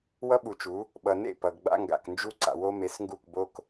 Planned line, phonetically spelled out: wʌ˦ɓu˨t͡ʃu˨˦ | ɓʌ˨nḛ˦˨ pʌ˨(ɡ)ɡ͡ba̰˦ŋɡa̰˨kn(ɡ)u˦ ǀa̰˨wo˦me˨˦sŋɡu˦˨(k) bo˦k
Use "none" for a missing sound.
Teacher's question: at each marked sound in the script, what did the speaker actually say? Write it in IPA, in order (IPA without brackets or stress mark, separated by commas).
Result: ɡ, d͡ʒ, k